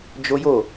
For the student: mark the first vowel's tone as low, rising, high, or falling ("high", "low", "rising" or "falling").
high